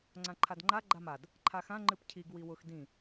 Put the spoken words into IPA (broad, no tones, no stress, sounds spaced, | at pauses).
ŋ͡ǀ ã ǃʰ a d ŋ͡ǃ a ɡ͡ǃ a m a d | ǃʰ a x ã ŋ͡ǃ ɨ p cʰ i ɡ w i w ʊ x d ĩ